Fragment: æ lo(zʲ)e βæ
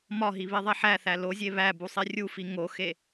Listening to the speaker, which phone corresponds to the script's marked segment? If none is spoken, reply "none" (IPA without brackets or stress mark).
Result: zʲ